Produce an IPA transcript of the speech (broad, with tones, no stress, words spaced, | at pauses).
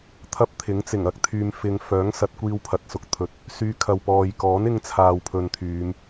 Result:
t̪ʰɐ˥p̚t̪ʰɪ˨˥ŋ t͡sɪ˨˩ŋɐ˥k̚t̪ʰyː˧mfɪ˧ŋ fœː˨˥ŋsɐ˨˥t̚kʷiː˧w pʰɐ˨t̚sʊ˧k̚t̪ʰɵ˨˥t̚ | syː˧ kʰɐ˨wpɔː˨j kɔː˨˥nɪ˧ŋt͡sʰaː˨w pʰɵ˧nt̪ʰyː˨˧m